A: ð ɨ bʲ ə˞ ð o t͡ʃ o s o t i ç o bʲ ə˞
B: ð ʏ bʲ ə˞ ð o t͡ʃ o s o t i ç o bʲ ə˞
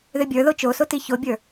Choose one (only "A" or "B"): B